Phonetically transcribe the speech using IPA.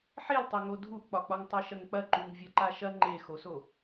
ħ e l tˤ o ŋ o dʱ u ʔ k͡p ɒ k͡p ɒ ŋ tˤ ɤ ʃ ɐ ŋ k͡p ɐ ǃ u ŋ vʲ ɐ ǃ a ʃ ɐ ŋ͡ǃ e x o s o

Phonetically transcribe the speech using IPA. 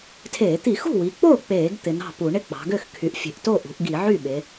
tʰ eː˧˩˧ t̪ i˧˩˧ x ṳ˥˩ w i˩˧ k͡p oː˥˩ k͡p eː˧˩˧ ɡ t̪ ɪ˩˧ n ɑ̤˥˩ p u˧˩˧ ɳ ɪ˥˩ k͡p ɑ̤˩˧ ɡ ø˥˩ x kʰ y˩˧ ʔ fʲ e̤˩˧ ʔ t o˥˩ ʔ ṳ˩˧ ʔ ɡ i˧˩˧ ʕ y˥˩ ɓ e˩˧

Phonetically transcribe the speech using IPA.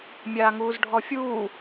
mʲ aː ŋ uː z ɖʱ ɔ fʲ uː

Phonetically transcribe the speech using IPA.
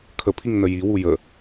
kʰ ə pʰ i ŋ n ə j i w u j ə

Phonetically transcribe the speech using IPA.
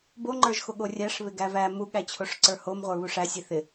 b o ŋ͡ǃ ə˞ ʒ x o ɠ o rʲ æ ʂ β ɪ ɡ æ v æ m u ɠ æ t͡ɕʰ o ʂ ǀ ə˞ h o m ʁʷ ə˞ β u ʂ æ sʲ e θ ɪ

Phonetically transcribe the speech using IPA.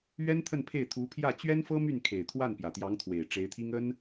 ɥ ɛ˥ n t̪ʰ ə˥˧ n pʰ e˥˩ ɪ̯ t̪ʰ u˧˥ pʰ j ä˥˩ t͡ɕ ɥ ɛ˥ n f ɤ˥ m y˥˩ n kʰ e˨˩ ɪ̯ t̪ʰ w a˥˩ n p j ä˨˩ t̪ j ɑ˧˥ ŋ t̪ʰ w e˨˩ ɪ̯ ʈ͡ʂ e˧˥ ɪ̯ t̪ʰ i˥ ŋ ə˥ n

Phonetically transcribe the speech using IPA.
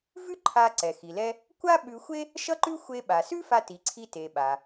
v ʉ˥ ǃʰ a˧ ǀ ɛ˩ x i˩ l ɛ˧ | kʷ a˥ ɓ ʉ˧ xʷ e˥ | ʃ ʌ˥ ǃ ʉ˥ xʷ e˧ ɓ a˩ s ʉ˥ f a˧ t i˩ ǀʰ i˧ t e˩ ɓ a˩

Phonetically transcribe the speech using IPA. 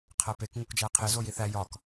qʰ æ p e k ŋ u k d͡ʒ æ qʰ e z o j i θ æ j ɒ k

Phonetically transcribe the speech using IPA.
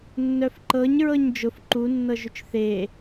nː œ f ǃ ɤ ɲ ɹ ɤ ɲ d͡ʒ ʊ f ǃ u nː ɤ ʒ ʏ t͡ʃ θ e

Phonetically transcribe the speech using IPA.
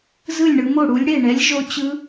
z ɯ˥˩ lʲ ɳ ɯ˨˦ m o˥˩ ɽ u˨˦ lʲ ɽ e˥˩ ɳ ɛ˨˦ lʲ ʒ o˨˦ t͡ɕ ɯ˨˦

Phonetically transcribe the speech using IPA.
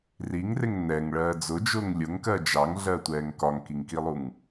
r i ŋ r ɪ ŋ n ɛ ŋ ɭ ɜː d͡z ʊ d͡ʒ ʊː ŋ lʲ ʊ ŋ k ɜ d͡ʒ ɑ ŋ ɮ ɜ tʷ ɛː ŋ k ɒ ŋ k i ŋ k i lˠ u ŋ

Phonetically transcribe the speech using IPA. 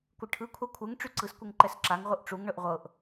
kʷ ɯ ʈʰ ɯ kʷʰ a kʷʰ ɯ ŋ ʈ͡ʂ y ǀ ɯ s kʷ ɯ ŋ ǃ ɛ s ǁ a ŋ ʁʷ ɯ ʔ ʈ͡ʂ u ŋ ɳ ɵ ʔ ʁʷ ɤ ʔ

